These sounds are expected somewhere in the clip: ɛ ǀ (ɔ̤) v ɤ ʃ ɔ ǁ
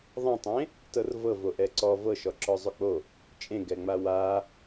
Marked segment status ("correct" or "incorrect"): incorrect